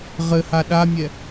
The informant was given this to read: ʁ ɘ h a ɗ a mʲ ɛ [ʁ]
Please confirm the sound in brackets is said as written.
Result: no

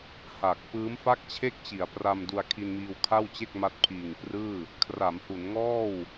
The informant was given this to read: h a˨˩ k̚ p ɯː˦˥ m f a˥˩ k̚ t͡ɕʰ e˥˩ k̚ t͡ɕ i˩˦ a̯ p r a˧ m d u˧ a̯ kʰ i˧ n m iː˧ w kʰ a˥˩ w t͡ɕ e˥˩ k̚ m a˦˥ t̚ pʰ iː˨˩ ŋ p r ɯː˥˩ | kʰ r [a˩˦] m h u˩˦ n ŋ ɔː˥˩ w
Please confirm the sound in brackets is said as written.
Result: yes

